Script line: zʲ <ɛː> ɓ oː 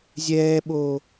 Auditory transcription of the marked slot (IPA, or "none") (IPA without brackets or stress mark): ɛː